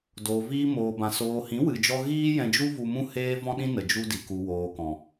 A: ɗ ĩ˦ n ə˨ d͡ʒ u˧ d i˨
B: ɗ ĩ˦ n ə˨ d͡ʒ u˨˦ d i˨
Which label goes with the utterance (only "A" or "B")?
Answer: A